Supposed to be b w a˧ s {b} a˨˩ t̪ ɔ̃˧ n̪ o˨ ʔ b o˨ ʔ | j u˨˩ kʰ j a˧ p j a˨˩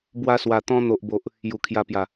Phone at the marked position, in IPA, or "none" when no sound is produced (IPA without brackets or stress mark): w